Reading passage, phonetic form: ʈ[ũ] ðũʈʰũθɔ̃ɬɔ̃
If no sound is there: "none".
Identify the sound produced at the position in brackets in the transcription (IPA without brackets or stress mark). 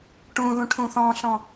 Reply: ũ